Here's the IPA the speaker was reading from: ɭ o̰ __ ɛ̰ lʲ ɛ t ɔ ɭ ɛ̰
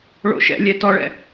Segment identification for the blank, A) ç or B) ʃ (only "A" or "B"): B